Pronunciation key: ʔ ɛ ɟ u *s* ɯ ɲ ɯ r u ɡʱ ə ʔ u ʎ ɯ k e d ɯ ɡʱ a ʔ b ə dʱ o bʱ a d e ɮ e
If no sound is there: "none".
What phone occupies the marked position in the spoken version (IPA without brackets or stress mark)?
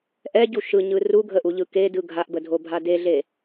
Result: ʃ